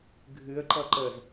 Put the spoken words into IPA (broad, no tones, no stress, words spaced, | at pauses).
ɡʱɨə̯ ǃʌǃəz